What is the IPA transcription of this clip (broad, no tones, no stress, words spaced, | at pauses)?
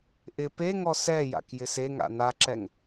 ʔɪ pe ŋɔsɛja̰k jɪseŋa̰ naǁɛŋ